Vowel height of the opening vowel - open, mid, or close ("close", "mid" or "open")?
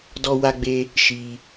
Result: mid